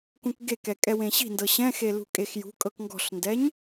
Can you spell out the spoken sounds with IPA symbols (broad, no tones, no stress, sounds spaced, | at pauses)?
k ũ k ɡ e k ɛ kʼ ɛ w ẽ ɕ i̤ n d ɤ ɕ ɛ̃ x e l ṳ kʼ e x j ṳ kʼ ɤ k ŋ ɡ ɔ̤ ɬ n d ɛ ɲ